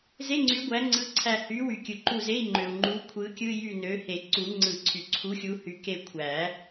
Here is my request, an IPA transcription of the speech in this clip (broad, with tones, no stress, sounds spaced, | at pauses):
z e˧˥˧ ŋ͡ǀ y˨˥ ɡʷ æ˨˥ ŋ͡ǀ ɯ˧˥˧ ǀʰ æ˦˨ h y˨˥ w y˨ kʲ ɯ˨ ǃ u˦˨ z e˧˥˧ i̯ ŋ͡ǃ ø˨ u̯ ŋ͡ǃ u˨˥ kʷʰ ɯ˨˥ kʲ ɯ˧˥˧ j y˦˨ n ø˨˥ h e˨˩˦ ǀ u˨˩˦ ŋ͡ǀ ɯ˨˩˦ ǀʰ y˨ ǀʰ u˨˥ xʲ u˨˥ h y˨˥ k e˦˨ kʷʰ æ˨˩˦